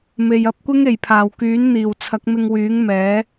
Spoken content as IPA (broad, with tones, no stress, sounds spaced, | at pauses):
m e˨ j ɐ˨˥ p̚ kʷ ɪ˥ ŋ e˨˩ j pʰ aː˨˩ w k yː˨˥ n n̪ iː˨˩ w t͡sʰ ɐ˨˥ k̚ m ɪ˧ ŋ w yː˨˥ ŋ m ɛː˨˥